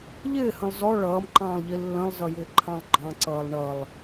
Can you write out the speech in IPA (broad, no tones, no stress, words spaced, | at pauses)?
ʎɪːhə̃lˠ zɔ ɭʌːmǃɑ̃ːlˠʎi lːə̃lˠzʌjɪː ǃʰɑ̃lˠɡ͡ǃɑ̃ǀʌːlˠ ɳʌlˠ